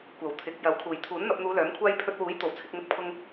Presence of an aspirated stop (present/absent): present